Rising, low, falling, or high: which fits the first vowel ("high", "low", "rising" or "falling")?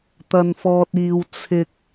high